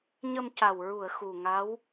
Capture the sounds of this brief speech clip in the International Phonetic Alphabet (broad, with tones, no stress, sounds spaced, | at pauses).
ɲ ə˧ m c a˨˩ w ɹ u˨˩˨ ə̯ x u˨˩ ŋ a˧˥ w